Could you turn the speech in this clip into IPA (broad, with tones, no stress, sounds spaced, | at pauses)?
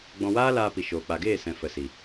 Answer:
ɡ͡b ɔ̃˧ w aː˦ l aː˧ p i˨ ʃ oː˨ k͡p a˨ ɡ eː˦˨ s ɛ̃˨ f ə˨ s i˨